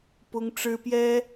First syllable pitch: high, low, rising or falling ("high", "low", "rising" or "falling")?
high